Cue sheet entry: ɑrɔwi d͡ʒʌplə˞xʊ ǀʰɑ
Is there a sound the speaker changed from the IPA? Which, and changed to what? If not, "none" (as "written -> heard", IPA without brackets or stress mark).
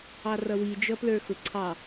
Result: ɔ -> ʌ